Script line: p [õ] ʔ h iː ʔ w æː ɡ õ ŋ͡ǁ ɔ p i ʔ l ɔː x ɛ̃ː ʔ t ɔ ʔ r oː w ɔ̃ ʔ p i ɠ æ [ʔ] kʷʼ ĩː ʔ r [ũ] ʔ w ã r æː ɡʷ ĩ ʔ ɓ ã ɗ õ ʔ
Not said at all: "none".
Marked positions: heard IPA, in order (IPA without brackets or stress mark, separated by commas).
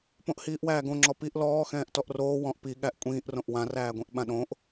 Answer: õ, ʔ, õ